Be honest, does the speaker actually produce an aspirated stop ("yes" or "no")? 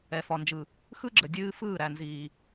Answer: no